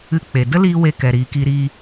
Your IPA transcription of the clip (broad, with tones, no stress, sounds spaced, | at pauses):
ɨ˧ k͡p e˨ d ə˦ l iː˧ w e˦ k ɛ˨ ɾ iː˨ k i˧ ɾ iː˧